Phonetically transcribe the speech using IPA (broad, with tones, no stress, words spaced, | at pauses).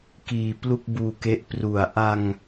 kiː˧plu˥˩k̚buː˧ke˦˥ʔ pru˨˩a̯ ʔa˧ŋ